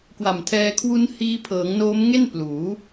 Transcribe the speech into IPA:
kwa˨˩mtʰɛː˧ kʰwu˦˥n hiː˧pʰɤː˩˦ŋ noː˦˥mŋe˥˩n pluː˩˦

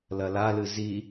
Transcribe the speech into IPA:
lɐlalɨ zi

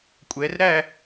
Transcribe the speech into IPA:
kʷʼɛ˩˧rɾæ˥˨

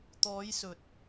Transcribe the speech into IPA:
t̪ɔː˨˧jsɵ˨t̚

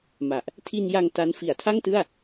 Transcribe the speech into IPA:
ma˨˩ʔ | tʰi˧nja˧ŋ ta˦˥n fi˩˦a̯tʰa˥˩ŋtɯ˥˩a̯

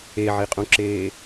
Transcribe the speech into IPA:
eʕiqʼũǁeː

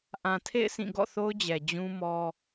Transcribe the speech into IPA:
ʔã˨tʰḛ˦˨ɪ̯ sĩ˦˨ ɡɔ̰˦˨θo˦ʊ̯d͡ʑɛ˨ d͡ʑũ˦mɔ˦

